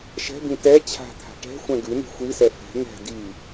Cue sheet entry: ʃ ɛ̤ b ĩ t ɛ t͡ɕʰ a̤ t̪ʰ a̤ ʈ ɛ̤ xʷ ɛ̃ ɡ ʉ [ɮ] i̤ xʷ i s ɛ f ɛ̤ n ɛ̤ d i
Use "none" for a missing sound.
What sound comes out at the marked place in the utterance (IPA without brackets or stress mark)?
n